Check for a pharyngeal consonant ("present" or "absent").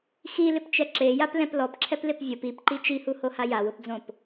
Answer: absent